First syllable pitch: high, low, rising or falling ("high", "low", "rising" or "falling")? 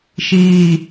low